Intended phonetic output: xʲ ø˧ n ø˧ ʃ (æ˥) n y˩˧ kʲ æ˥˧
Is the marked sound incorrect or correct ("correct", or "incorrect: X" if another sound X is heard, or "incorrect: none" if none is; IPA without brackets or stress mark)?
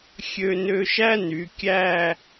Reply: correct